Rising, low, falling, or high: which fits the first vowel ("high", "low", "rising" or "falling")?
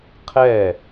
falling